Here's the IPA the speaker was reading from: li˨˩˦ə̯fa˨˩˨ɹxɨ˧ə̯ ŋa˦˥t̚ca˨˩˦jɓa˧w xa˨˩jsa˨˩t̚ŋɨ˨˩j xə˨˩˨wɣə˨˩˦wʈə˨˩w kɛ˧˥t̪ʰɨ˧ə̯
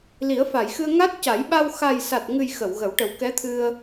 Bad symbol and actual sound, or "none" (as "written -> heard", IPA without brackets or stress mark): ɹ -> j